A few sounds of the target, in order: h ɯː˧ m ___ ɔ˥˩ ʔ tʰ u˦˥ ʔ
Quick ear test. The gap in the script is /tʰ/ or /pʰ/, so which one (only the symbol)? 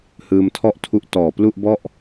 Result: tʰ